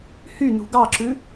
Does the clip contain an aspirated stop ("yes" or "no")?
no